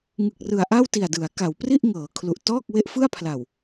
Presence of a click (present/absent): absent